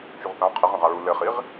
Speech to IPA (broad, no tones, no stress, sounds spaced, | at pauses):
t͡ʃ u ʁ θ ã qʰ e ʁ ɐ̃ ʁ a ɹ u l ɘ χ i ʁ